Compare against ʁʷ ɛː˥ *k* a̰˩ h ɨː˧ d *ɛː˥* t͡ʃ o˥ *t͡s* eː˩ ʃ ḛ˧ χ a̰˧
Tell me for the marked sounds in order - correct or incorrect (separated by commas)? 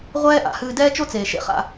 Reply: incorrect, correct, correct